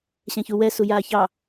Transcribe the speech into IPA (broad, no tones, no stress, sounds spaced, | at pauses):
ɕ ɛ̃ ç u w ɛ s u j aː ç ɑ